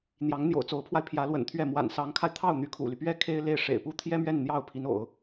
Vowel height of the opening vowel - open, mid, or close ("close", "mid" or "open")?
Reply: open